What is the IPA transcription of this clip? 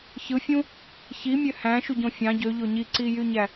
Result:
ç ɯ fʲ ũ | ç i mʲ ø h æ̃ ʃ u ɟ õ fʲ ɑ̃ ɟ ø ʎ o ɲ i ǀ i j y ɲ æ

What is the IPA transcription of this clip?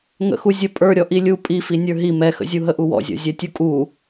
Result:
ŋ ə̰ x u zʲ ə pʼ ə˞ ɾʲ ɔ ʔ i lʲ u pʼ i f i nʲ ə˞ ɦ i m ɛ x ə̰ zʲ u ɦ ə ʔ u w ɔ̰ zʲ ɔ̰ zʲ ɛ tʲ u kʼ u

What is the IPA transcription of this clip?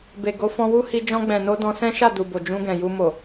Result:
b e˨ ɡ o˨˦ f ɔ̃˧ w u˦ h i˧ d͡ʒ ɔ̃˧ ɡ͡b ɛ̃˨ n o˧ d ɔ̃˧ s ɛ̃˦ ʃ a˦˨ d u˨ b o˨ d͡ʒ ũ˧ ɡ ɛ̃˨ j u˧ m o˨

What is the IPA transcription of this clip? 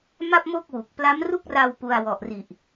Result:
m a˥˩ p̚ m o˥˩ k̚ w u˨˩ k̚ p l a˦˥ m r u˥˩ k̚ r a˧ w p u˧ a̯ w ɔ˨˩ ʔ r i˨˩ ʔ

